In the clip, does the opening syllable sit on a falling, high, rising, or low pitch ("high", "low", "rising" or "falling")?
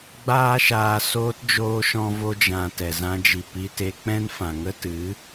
high